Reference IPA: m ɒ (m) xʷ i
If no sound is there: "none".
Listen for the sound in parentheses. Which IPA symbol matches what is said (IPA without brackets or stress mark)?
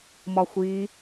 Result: none